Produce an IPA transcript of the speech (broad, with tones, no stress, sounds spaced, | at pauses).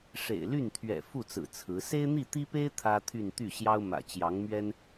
ʂ ḛ˨˩ ɪ̯ l y˥˩ n t̪ʰ ɥ ɛ̰˨˩ f u˥˩ t͡s ɹ̩˨˩ t͡sʰ ɹ̩˧˥ s e˥ ɪ̯ n̪ i˥˩ t̪ i˥ p e˥ ɪ̯ t̪ʰ ä˥ t̪ʰ y˥˧ n t̪ y˥˩ ɕ j ɑ˥ ʊ̯ m ä̰˨˩ t͡ɕ j ɑ˧˥ ŋ m ɥ ɛ˥ n